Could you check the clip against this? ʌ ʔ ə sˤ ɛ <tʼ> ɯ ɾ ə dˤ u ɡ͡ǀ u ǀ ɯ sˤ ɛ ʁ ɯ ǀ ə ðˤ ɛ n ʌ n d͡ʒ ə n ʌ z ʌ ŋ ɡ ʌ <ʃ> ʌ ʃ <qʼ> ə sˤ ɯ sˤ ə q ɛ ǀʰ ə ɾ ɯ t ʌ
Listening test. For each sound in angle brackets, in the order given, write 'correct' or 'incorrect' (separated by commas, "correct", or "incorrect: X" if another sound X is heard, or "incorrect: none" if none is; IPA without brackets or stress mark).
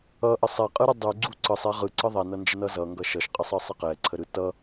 incorrect: qʼ, correct, correct